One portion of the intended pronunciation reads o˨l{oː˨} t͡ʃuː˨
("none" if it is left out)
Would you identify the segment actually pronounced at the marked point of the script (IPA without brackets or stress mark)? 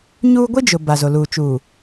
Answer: uː˨